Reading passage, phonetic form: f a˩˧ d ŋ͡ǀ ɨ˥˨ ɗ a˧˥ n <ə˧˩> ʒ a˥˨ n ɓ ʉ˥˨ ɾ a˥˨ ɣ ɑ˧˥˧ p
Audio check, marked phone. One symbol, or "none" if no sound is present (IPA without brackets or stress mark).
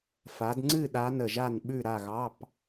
ə˧˩